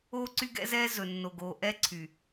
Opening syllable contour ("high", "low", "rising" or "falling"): high